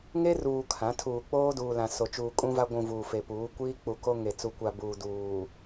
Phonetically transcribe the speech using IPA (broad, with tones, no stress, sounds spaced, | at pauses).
ŋ e˦ r uː˨ kʰ ã˨˦ tʰ uː˨ k͡p oː˦ d uː˨ l ã˨ s o˨ t͡ʃ uː˨ kʼ ũ˦ v a˦ ɡʷ ũ˨ v uː˨ f e˨ p uː˨˦ kʷ iː˦ k͡p u˨ k o˦ ŋ e˨ t͡s u˨ kʷ a˨ b uː˨ d uː˨